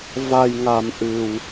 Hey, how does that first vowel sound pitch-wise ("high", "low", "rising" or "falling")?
low